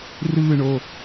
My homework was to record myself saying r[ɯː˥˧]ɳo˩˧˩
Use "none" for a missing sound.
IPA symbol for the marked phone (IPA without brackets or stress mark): ɯː˥˧